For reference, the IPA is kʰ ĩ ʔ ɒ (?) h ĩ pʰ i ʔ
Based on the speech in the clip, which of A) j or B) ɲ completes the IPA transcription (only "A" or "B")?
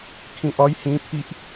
A